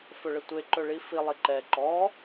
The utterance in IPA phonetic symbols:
f ɵ ɭ ə tʷ e ǃ ɵ ɭ i f i lˠ i ǃ ɛ ǃ ɔ

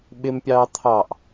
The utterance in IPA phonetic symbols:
ɓ ɪ m pʲ ɑː t̪ʰ ɑ ʔ

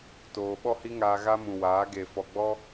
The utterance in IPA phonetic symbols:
t oː˧ ɓ ɔ˦ h i˦ ŋ aː˧ ɣ a˦ m ũ˨ w aː˨˦ ɡ e˨ f ɔ˨ ɡ͡b ɔ˦

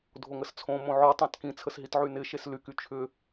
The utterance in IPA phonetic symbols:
dʱ o ŋ ə s t͡sʰ õ m õ ʕ ɔ tˤ ã t k ĩ t͡sʰ ə s ɦ i t ʕ y n ɪ ʃ e s l y k y t͡ʃʰ ʏ

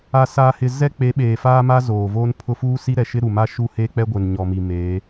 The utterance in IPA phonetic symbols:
a˨ s aː˨ h ɪ˨ z ɛ˦ k͡p e˨˦ ɓ eː˨ f aː˦ m a˦ z oː˨ v oː˦ n pʰ ʊ˦ f uː˦ s i˦ ɾ ɛ˨ ʃ ɪ˦ ɾ u˨ m a˦ ʃ u˦˨ h e˦ k͡p ɛ˦ ɡʷ e˨ n ɲ ɔ˨ m i˨ m e˨˦

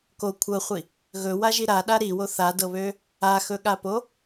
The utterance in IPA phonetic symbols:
k o kʷʰ ɤ χʷ i | ɣ ɵ w a ʒ i ɾ a ɗ a ɾ i w o θ a d ɤ β ø | a x ɵ ɠ a p o

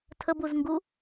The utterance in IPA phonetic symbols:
tʰ ə b u z ŋ ɡ u

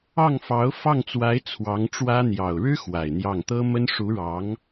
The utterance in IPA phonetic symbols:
ɑ˥˩ ŋ f ɑ˧˥ ʊ̯ f ɑ˥˩ ŋ t͡s w a˧˥ ɪ̯ t͡sʰ w ɑ˧˥ ŋ ʈ͡ʂ w ä˥ n̪ j ɑ˨˩ ʊ̯ ɻ ɻ̩˥ x w a˨˩ ɪ̯ n̪ j ɑ˥˩ ŋ t̪ ɤ˥ m ə˥ n ʂ u˧˥ ɻ ɑ˧˥ ŋ

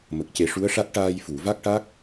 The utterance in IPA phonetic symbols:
m ə˨˩ k̚ c e˨˩˦ ʂ u˧˥ ə̯ ʂ a˦˥ t̚ ʈ aː˧ j f u˨˩˨ v a˦˥ k̚ ʈ a˦˥ k̚

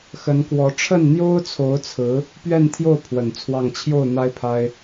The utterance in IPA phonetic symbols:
x ə˧˥ n k w ɔ˧˥ ʈ͡ʂʰ ə˥˩ n n̪ j o˥ ʊ̯ t͡sʰ o˧˥ ʊ̯ t͡sʰ ɹ̩˧˥ | p ɥ ɛ˥˧ n t̪ʰ j o˥˩ ʊ̯ pʰ w ə˨˩ n t͡sʰ w ɑ˥˧ ŋ t͡ɕʰ j o˥˩ ʊ̯ n̪ a˥ ɪ̯ pʰ a˥ ɪ̯

